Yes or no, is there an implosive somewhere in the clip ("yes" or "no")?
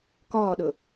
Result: yes